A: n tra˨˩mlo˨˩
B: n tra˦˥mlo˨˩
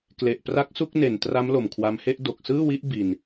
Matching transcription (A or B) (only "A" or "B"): B